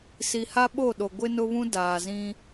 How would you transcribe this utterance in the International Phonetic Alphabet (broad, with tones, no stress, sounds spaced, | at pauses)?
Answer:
s i˨ h a˦ ɓ o˦˨ ɗ o˨ ɡʷ ɪ˦ n ʊ˦ β ũ˦ d aː˨ z ĩ˦